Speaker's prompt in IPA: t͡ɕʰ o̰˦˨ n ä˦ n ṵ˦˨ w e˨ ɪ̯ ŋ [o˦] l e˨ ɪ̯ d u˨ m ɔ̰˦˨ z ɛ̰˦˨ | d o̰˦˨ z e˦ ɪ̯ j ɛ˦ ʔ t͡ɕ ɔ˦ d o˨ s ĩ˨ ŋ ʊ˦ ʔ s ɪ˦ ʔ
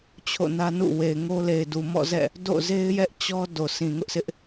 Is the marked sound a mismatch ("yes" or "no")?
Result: no